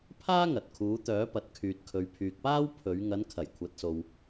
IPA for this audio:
pʰaː˥ŋɐ˨t̚ kʰuː˨˧t̪œː˨˥pɐ˨t̚kʰyː˨t̚ kʰɵ˨ɥpʰyː˨k̚paː˥w pʰɵ˨˥ɥ ŋɐ˨˧nkʰɐ˨˩jkʷʰɐ˨t̚so˨w

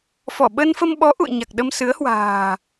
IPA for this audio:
fɔ˧˩ɓə˧nfə˧mɓɔ˨˦ ʔṵ˧˨ə̯ɲa˨˩k̚ ɗə˧msɨ˨˦ə̯hwa̤ː˨˩

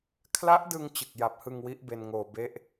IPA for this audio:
kʰla˦˥ʔdɯ˧ŋ t͡ɕɯ˨˩k̚ja˨˩p̚hɯ˧ŋ wi˦˥ʔbe˧nŋoː˧ be˦˥ʔ

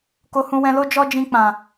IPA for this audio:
ko˧hũ˧wɛ̃˧lo˦ d͡ʒɔ˦d͡ʒĩ˧k͡pã˨

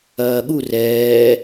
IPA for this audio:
ɐːɠu rɛː

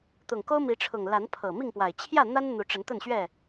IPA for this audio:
t̪ʊ˨˩ŋko˦ʊ̯mi˨˦ʈ͡ʂʰʊ˨˩ŋ la˨˦npʰɤ˨˩ mi˥˨ŋpwa˨˩ɪ̯ t͡ɕʰjä˥˨n̪a˦n n̪u˨˦ʈ͡ʂə˨˦nt̪ə˥˨nɕɥɛ˥˨

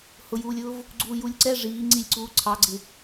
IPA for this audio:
hʊjuːlʲʊːv | ɡ͡ǀuːjulʲǀɛ ʐiː ŋ͡ǀilʲǀuː ǀʰɑɡ͡ǀɪ

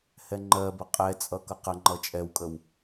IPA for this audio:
hɛŋ͡ǃɜbə qʼɛt͡sʼʌ kʌqəŋ͡ǃʌ t͡ʃʼɛwkʼəw

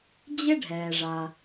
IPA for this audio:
d͡ʑɪ˥ɖʱɛː˩ʐa˩

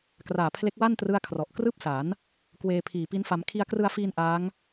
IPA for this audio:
kraː˨˩pʰle˦˥k̚ wa˥˩n trɯ˥˩a̯kʰrɔ˨˩ʔ krɯː˥˩p̚sa˩˦n | kweː˧pʰiː˨˩ pi˦˥nfa˧m kʰi˧a̯krɯ˧a̯ fiː˧n ʔaː˦˥ŋ

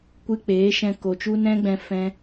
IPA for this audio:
kʷɨ˧k͡peː˨˦ʃɛ̃˧ ko˨t͡ʃu˦ nɛ̃˦ɡ͡bɛ̃˧ fɛ̃˧

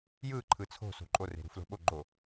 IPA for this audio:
jɯ ǃʰɯt͡sʰo̤ so̤ǃʼo re̤ɾṳflo̤ɓo ɡ͡ǃo

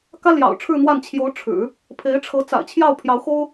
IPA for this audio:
kä˥ljɑ̰˨˩ʊ̯ʈ͡ʂʰɻ̩˥˧n̪wa˥˩n t͡ɕʰjo˧˥ʊ̯ ʈ͡ʂʰɻ̩˨˩˦ | pʰe˧˥ɪ̯ʈ͡ʂʰɤ˧˥ t͡sa̰˨˩ɪ̯t͡ɕʰjɑ˥˩ʊ̯ pʰjɑ˧˥ʊ̯xo˥ʊ̯

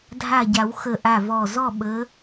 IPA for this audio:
dʱa˧˩ɟa˨˩˦w xə˧˩ʔa˧˩vɔ˧˩ zɔ˥˨ɓə˨˦

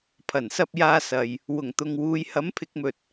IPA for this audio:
pʰɐ˨˩nsɐ˧p̚ jaː˧ sɐ˨j | wʊ˨˩ŋt̪ʊ˨ŋwuː˨˧j hɐ˨˥mpʰɪ˨˥k̚mɵ˨t̚

